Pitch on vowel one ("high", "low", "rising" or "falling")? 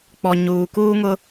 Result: low